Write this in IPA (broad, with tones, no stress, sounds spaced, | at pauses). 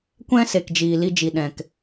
kʷ ɛ̃˦ s e˨ k d͡ʒ iː˨ l i˧ d͡ʒ i˨ ɗ ɛ̃˨ k